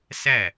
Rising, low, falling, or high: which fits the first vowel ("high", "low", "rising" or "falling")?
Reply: falling